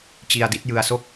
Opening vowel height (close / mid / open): close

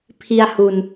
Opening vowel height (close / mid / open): close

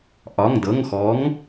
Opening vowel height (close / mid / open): open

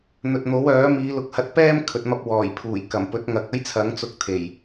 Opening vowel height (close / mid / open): mid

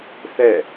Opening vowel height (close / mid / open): mid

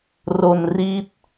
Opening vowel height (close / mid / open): mid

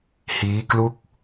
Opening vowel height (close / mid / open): close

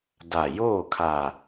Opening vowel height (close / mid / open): open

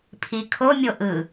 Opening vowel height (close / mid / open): close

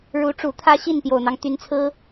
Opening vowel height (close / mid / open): close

